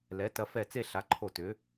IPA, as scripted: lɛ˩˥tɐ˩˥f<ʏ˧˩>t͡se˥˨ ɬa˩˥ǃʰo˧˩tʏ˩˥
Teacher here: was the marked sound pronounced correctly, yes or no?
no